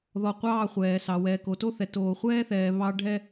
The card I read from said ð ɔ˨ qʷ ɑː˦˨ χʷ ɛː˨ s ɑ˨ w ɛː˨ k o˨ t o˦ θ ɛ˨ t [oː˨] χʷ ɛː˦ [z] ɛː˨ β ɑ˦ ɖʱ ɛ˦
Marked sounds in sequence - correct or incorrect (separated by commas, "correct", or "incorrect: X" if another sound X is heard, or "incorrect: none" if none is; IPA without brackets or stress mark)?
correct, incorrect: θ